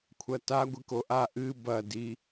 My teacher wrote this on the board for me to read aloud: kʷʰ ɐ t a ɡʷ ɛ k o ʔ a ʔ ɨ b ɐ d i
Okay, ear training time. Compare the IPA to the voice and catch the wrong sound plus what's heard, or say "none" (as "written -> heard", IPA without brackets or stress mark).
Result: ɛ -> ɨ